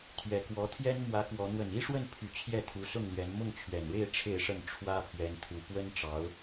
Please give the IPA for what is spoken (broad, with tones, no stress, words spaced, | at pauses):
t̪ʰɥɛ˨˩kwɔ˧˥t̪ʰjɛ˥nmwä˧˥ kwɔ˧˥ n̪wə˨˩ni˥ʂwə˥˩npʰy˨˩ t͡ɕʰjɛ˥˩t̪ʰu˧˥sʊ˥˩ŋn̪ɥɛ˧˥n mʊ˥˩ŋt͡ɕʰɥɛ˨˩nɻe˥˧ɪ̯ ʈ͡ʂʰe˥˧ɪ̯ʂə˥˩n ʈ͡ʂʰwä˥pʰɥɛ˧˥nt̪ʰu˨˩ pwə˥nʈ͡ʂɑ˧˥ʊ̯